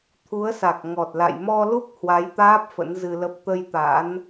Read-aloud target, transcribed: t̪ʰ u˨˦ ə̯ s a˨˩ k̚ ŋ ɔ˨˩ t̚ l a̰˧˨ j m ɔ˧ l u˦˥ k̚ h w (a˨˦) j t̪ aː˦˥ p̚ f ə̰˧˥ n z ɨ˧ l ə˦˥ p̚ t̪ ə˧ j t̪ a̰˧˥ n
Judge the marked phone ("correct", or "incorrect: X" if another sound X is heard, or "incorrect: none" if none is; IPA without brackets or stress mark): correct